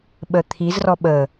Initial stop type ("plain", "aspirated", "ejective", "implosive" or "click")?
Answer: implosive